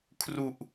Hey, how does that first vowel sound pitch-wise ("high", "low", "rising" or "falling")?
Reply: low